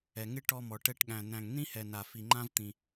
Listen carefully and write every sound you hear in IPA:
ɛ˧ŋɪ˥ ʈɔ˥mɔ˧ʈɛ˥ʈ ɠæ̃˧næ̃˧ŋnĩ˥hɛ˧ na˧fi˧ŋ͡ǃã˥vt̪ĩ˧

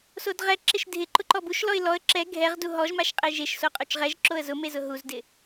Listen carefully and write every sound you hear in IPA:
sodʁɛ ǁɪʃdʱɪǃʊ ǃɔbuʃlɔɪ̯ lɔə̯ ǁɛ ɡʱɛʁdu ɦɔʒmaʃqʼe ʒeʃsoqʼot͡ʃ ʁɛʒ ǁoə̯zʊmezʊ ɦuzdɪ

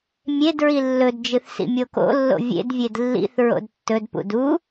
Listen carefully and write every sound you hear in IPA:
mʲed ɹilːɵdd͡ʒɨθ sḭmʲoko̰lːo̰ vʲḛdvʲed lːḭθ ɹo̰dtːɵdpṵd u

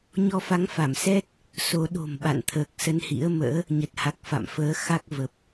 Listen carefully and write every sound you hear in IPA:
ɲɔ˧fa˨˦ŋfa˧˩msɛ˦˥t̚ | so˨˦ ɗo̤˨˩mɓa̰˧˨nt̪ʰəː˨˩k̚ sə˧nhḭ˧˥ə̯mə̰ː˧˥ | ɲə˨˩t̚ha˨˩k̚ fa̰˧˨mfəː˨˦ xa˦˥k̚ və˨˩p̚

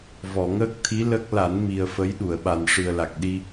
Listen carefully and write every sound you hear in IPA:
vɔ˨˩˨ŋəː˦˥k̚t̪ʰi˧˥ lə˦˥k̚ la˨˩˦nmi˨˩ə̯ fə˧˥jɗu˨˩˨ə̯ɓa˨˩n ʂɨ˨˩ə̯la˨˩k̚ɗi˧

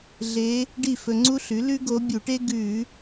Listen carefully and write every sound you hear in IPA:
ɮe˧˥ | ɖi˥˨fɵ˧ŋ͡ǀu˥ɬʉ˩˥ lʉ˥ɡo˧˥ bʲu˧˩˧ʈe˥ ɡʉ˧˩˧

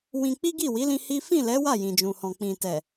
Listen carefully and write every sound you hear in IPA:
wĩ˧ k͡pi˦ɡi˦˨wi˨˦lĩ˧ hi˦ fĩ˦˨lɛ˨˦ wa˦˨jĩ˨d͡ʒũ˨hɔ̃˨ k͡pĩ˨tɛ˨

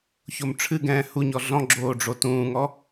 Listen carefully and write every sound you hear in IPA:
çomʈ͡ʂʰɨɡɛ̃ː hu ɲɔɮɔ̃ɡ͡ǁoː ɖ͡ʐotũːŋɔ

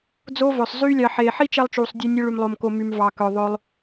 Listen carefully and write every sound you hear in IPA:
d͡zo˦vœ˨sˤ zyː˦lʲɑ˧ ħeː˨ħi˦t͡ʃɛ˧lˠt͡ʃuː˨sˤ dʲœ˧nʲɵ˧ ɭy˧mlˠo˧mko˧ my˨mvɑ˨kœ˨ ðˤɵ˧lˠ

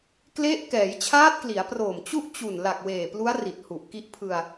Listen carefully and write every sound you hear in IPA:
kle˦˥ʔ kɛː˩˦jt͡ɕʰaː˦˥t̚kli˩˦a̯proː˨˩m t͡ɕu˥˩ʔt͡ɕu˨˩n la˨˩k̚weː˨˩plu˦˥a̯ ri˨˩t̚hu˨˩ʔ ki˦˥ʔpʰɯ˧a̯

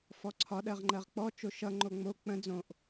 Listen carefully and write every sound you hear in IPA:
fɔǀʰɒɗɜʁ ŋ͡ǃɜʁk͡pɔ t͡ʃoʃʌ ŋ͡ǃoŋ͡mo k͡pə̃ d͡zõʔ

